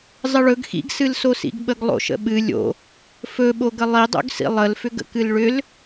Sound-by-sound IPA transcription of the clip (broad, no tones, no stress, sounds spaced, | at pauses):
zˤ ə ɭ ɵ ɡ x ḭ ɡ s ɨ l s o s ḭ ɡ ɓ ə ɡ lˠ o̰ ʃ ə̰ ɓ ɨ lʲ o̰ | f ɵ ɓ o ɡ ə lˠ i dˤ o̰ ɡ s ḭ lˠ ə l f ʏ ɡ ə̰ k ɨ l ɭ ʏ l